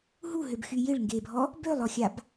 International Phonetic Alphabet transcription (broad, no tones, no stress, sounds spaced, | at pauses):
ɦ u ɦ ø b x y j ɪ ɭ ŋ ɡ e bʱ ɔ | b ø lˠ ɔ xʲ a b